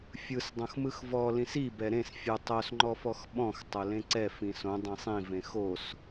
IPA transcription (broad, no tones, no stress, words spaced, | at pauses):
fʲɯsdˤõx mɯxvɔlĩs i bɛɾẽs fʲɯ tˤosŋ͡ǃɔfɔx ɓɔ̃x tˤolẽǀɛ fĩsõ dˤẽsˤĩvẽ xos